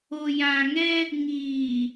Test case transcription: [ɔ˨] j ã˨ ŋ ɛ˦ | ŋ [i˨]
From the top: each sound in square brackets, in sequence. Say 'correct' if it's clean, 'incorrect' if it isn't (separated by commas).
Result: incorrect, incorrect